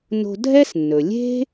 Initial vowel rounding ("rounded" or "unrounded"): rounded